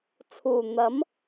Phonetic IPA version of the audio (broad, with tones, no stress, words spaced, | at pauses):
t͡sʰuː˨˩n̪ɐ˨˥m